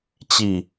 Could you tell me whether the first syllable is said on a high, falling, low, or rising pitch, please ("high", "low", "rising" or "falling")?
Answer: falling